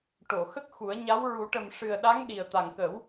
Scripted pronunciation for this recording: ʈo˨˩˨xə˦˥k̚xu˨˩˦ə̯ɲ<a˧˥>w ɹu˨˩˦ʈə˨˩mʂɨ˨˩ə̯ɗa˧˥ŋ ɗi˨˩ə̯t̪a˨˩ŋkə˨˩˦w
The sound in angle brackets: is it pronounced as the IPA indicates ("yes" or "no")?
yes